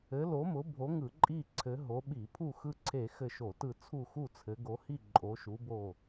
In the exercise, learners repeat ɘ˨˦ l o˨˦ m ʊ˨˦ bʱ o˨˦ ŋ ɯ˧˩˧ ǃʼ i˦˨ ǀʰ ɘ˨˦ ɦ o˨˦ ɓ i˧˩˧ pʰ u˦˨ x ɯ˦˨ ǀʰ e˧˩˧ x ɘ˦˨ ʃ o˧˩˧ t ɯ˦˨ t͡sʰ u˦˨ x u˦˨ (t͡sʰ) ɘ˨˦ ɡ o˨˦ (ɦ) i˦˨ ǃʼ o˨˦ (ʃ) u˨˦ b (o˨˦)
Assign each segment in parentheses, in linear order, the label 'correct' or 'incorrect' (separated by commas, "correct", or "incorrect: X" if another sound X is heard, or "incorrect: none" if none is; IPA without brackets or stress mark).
correct, incorrect: h, correct, incorrect: o˦˨